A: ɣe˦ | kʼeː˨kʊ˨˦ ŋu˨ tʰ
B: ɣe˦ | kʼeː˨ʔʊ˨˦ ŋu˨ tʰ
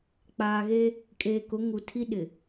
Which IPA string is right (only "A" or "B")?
A